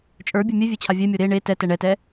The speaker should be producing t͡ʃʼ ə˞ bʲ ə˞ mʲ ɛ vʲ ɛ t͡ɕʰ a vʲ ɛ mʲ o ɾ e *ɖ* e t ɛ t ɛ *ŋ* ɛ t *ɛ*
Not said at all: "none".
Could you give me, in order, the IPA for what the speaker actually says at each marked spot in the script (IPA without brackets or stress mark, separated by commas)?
ɳ, ɳ, ɛ